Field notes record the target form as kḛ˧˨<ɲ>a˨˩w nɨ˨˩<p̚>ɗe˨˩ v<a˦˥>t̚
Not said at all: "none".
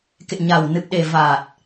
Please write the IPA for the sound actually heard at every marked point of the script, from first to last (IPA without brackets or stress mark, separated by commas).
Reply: ɲ, p̚, a˨˩